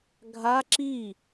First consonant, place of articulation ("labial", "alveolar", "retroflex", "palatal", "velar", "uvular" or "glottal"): velar